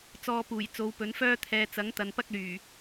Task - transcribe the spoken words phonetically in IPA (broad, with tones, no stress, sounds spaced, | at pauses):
t͡s ɔː˧ p uː˨˩ j t͡s o˨˧ w p ɵ˨˥ n f œː˥ t̪ʰ ɛː˧ t͡s ɐ˨˥ ŋ t̪ ɐ˨ n p ɐ˥ k̚ l yː˨˩